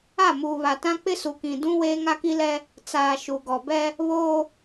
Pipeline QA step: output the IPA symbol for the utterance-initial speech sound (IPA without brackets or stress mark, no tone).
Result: a